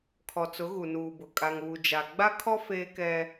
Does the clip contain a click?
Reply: no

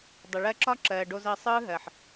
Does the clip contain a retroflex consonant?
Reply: yes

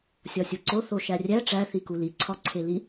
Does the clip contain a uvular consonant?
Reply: no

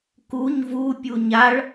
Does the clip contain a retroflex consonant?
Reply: yes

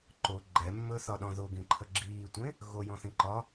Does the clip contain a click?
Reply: yes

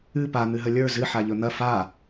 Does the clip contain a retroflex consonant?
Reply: no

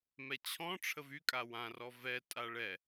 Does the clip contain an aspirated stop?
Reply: yes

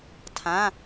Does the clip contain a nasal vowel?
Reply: yes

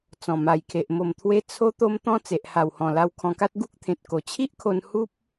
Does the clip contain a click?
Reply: no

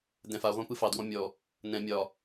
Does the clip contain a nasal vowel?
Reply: yes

